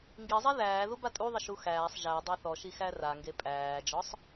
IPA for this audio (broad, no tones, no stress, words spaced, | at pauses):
ŋɡizˤe ðæːðu batʼuðˤə ʃuxæːsˤ ʒæ dˤaθɔʃi xæraŋɡe pʼæːd͡ʒɔsˤ